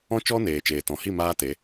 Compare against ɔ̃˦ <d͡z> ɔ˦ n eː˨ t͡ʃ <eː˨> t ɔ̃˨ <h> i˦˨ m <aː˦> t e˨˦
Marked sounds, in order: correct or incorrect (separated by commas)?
incorrect, correct, correct, correct